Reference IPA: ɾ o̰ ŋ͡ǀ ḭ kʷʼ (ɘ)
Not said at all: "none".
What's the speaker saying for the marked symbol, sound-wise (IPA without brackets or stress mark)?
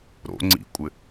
ɘ